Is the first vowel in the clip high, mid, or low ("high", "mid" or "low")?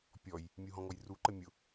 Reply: mid